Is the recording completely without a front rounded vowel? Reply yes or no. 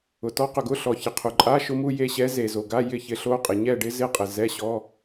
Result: yes